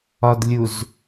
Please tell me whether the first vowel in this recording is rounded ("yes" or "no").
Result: yes